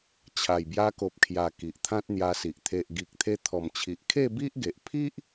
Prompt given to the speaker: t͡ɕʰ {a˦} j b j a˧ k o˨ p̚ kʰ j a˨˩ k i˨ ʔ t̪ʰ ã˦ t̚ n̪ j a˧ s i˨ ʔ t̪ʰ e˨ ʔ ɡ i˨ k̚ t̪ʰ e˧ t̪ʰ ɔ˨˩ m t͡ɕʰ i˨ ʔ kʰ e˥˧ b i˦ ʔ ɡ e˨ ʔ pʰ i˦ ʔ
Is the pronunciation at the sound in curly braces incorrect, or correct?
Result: incorrect